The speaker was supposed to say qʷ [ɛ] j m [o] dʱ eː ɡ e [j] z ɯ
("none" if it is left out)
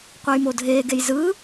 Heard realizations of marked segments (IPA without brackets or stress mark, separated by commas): ɛ, o, j